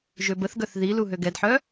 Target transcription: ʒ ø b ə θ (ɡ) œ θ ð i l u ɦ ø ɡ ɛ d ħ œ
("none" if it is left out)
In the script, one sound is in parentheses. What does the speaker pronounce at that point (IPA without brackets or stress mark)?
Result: ɡ